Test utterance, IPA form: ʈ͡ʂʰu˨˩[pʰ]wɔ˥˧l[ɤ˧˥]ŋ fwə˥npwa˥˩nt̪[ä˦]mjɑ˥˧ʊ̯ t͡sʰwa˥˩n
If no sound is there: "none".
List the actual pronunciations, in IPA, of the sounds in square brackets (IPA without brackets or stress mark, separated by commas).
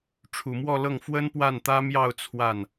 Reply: m, ɤ˥˩, ä˥